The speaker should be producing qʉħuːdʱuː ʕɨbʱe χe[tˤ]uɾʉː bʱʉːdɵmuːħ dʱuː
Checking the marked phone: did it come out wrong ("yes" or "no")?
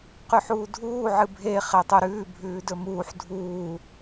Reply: no